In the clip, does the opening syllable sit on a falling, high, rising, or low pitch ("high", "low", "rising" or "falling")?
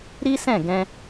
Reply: high